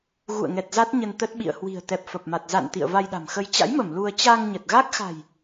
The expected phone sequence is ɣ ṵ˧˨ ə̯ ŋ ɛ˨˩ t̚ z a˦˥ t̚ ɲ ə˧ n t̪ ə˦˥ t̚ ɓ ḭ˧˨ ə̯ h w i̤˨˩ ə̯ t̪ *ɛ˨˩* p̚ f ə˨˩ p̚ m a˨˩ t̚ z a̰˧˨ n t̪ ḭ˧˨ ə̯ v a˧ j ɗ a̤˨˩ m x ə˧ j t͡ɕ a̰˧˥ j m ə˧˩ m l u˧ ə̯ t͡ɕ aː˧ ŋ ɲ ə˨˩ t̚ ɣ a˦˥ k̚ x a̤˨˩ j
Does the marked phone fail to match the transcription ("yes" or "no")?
no